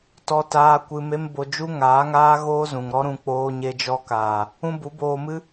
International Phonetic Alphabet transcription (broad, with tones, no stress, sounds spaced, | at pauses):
t ɔ˦ t aː˦ kʷ ɨ˧ m e˦ m b o˧ d͡ʒ u˦ ŋ aː˨˦ ŋ aː˦ ɣ oː˦ z ũ˨ ŋ ɾ ɔ˦ ɾ ũ˧ k͡p oː˧ ɲ e˧ d͡ʒ ɔ˧ k aː˨ | ũ˦ b u˨˦ b oː˧ m ɨ˦